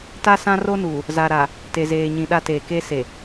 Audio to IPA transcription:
t a˦ s ã˦ r o˦ n uː˨ | z a˨ ɾ a˨ | t e˨ z eː˨ ɲ ĩ˨ ɗ a˦ t eː˨ k e˦ s e˨

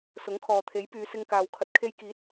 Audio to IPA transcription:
s ʊ˨˥ ŋ kʰ ɔː˨ t̪ʰ e˨˥ j p yː˨˧ s ɪ˧ ŋ k aː˨ w kʰ ɐ˨ t̚ kʰ e˧ j k iː˨˥ t̚

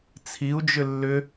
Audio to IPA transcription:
t͡sʰ i u̯ d͡ʒ ʏ lː ʏ

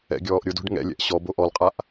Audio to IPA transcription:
ɛ̰ ɡʲ ɔː ʔ ɾʲ ʊ d o̤ ɖ ŋ ɛ̰ lʲ ɛ̰ ʔ ɕ ɔ b o ʔ ɔ l qʼ a ʔ

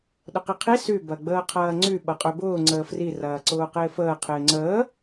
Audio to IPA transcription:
ɗ ʊ q i qʰ i s y b ɐ ɡ͡b əː qʰ ɐː ŋ͡ǀ y ɓ ɐ qʼ ø b ʊː ŋ͡ǀ əː f r i r ɐː ǀ ʊː q ɪː f əː qʰ ɪː ŋ͡ǀ əː

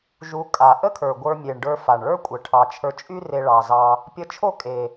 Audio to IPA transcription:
ʒ u˧˥ kʼ a˨˩ ʔ ə˥ kʰ ə˞˨˩ ɡʷ ə˞˧ mʲ e˨˩ ɳ ɖ ə˞˧ f a˨˩ ɳ ɭ ə˞˥ kʷʼ ə˨˩ ʈʰ ɑ˨˩ t͡ʃʰ ə˞˧ t͡ʃʼ y˥ r e˧ ɭ ɑ˨˩ z ɑ˧ | pʲ ə˧˥ t͡ʃʰ o˥˧ kʼ e˨˩

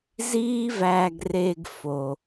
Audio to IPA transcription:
z iː˦ v æː˨ ɡ r e˨ ɡ f o˩

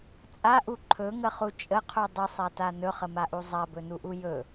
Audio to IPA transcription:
t͡sʼ a ʔ u ǃʰ ɵ ŋ ə χ u t͡ʃʼ ə qʰ u dˤ ə sˤ a t a n ɵ χ ə m a ʔ u zˤ a b ɵ n u ʔ u j ɵ

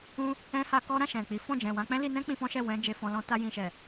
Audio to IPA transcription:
ũ˧ | ɛ̃˧ h a˧ k ɔ˦ ɾ ã˦˨ ʃ ɛ̃˨ k͡p i˨˦ f ɔ̃˦˨ d͡ʒ ɛ̃˨ w ã˧ k͡p ɛ̃˦ l i˧ n ɛ̃˦ k͡p ĩ˧ f ɔ̃˦ ʃ ɛ˦˨ w ɛ̃˧ d͡ʒ e˧ f ɔ̃˧ l ɔ̃˧ t a˧ j ĩ˨ ʃ ɛ˨

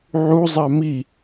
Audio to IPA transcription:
ʕ u zˤ a m i

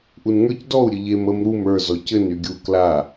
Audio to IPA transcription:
ʔ u n ŋ ə˞ c d ɔ u̯ ɾʲ ɘ ʎ e m ə m ɾ u m ə˞ z ɔ c ɘ n y ɡʲ u k l a

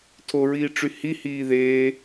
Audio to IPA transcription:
tʰ o ɹ iː ʈ͡ʂ y h i h iː ð eː

